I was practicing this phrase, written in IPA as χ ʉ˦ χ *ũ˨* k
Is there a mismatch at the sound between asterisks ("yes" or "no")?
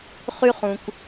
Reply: no